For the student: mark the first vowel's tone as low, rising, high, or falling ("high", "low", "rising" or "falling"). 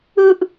high